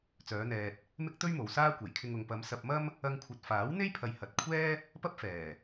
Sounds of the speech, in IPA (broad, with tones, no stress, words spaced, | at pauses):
t͡sœː˨˧n̪ɛː˨t̚ | mɪ˥k̚t̪ɵ˥ɥmo˨w saː˥kʷe˨˩jkʰɪ˧ŋ ʊ˨ŋpɐ˨˧m sɐ˧p̚mɐ˥m | ɐ˧ŋkʷʰɐ˨t̚faː˨˥w n̪e˥jpʰɐ˨j hɐ˨t̚ kʷʰɛː˥ | pɐ˥p̚fɛː˨˩